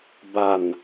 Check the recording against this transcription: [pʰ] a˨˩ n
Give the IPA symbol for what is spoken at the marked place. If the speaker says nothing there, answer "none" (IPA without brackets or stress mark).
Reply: b